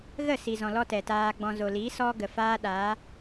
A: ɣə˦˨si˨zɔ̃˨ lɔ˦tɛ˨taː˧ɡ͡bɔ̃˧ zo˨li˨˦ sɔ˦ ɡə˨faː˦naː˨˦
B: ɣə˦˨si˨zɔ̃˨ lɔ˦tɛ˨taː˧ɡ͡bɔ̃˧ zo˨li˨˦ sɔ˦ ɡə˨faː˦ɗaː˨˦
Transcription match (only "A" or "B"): B